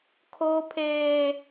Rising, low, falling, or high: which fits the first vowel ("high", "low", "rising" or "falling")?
high